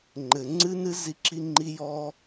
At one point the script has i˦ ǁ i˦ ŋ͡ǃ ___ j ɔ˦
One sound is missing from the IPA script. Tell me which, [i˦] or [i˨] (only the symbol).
i˦